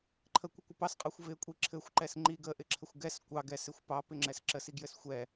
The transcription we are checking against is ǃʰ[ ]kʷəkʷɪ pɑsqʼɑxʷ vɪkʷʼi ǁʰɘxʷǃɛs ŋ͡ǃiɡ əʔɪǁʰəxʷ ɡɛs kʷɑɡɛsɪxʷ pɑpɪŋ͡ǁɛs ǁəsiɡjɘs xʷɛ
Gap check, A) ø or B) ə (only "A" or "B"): B